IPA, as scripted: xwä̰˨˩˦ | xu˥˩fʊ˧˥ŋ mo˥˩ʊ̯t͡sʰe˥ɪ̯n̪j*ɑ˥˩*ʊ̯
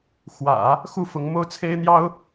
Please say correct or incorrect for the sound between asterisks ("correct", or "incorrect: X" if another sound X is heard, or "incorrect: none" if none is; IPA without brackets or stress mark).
incorrect: ɑ˥